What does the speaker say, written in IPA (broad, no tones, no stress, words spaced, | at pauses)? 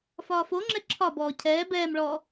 fɒːfoŋ͡ǁɛ ǁʰɒbɔː cʰɛː bɛːmɭɔː